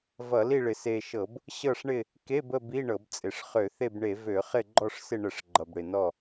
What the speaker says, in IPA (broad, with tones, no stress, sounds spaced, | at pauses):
v ʌ˧˩˧ l i˦˨ ɭ ɪ˨˩ s e˨˩ ʃ ɤ˧˩˧ b | ɕ ɤ˦˨ ʂ ɳ ɪ˦˨ | k e˧˥˧ b ə˦˨ b i˧˥˧ ɳ ɤ˧˩˧ b t͡sʼ ɪ˨˩ ʂ χ ø˧˩˧ θ e˦˨ b ɳ e˧˩˧ v ø˧˩˧ χ ɪ˦˨ ɡ͡ǃ ɔ˦˨ ʂ s ɪ˦˨ ɳ ə˧˩˧ ʂ ɡ͡ǃ ʌ˨˩ b ɽ ɪ˨˩ n ɔ˦˨